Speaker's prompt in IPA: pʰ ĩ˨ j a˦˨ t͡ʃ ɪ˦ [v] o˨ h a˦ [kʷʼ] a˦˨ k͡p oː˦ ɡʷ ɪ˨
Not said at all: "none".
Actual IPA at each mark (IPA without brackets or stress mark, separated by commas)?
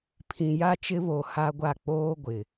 β, ɡʷ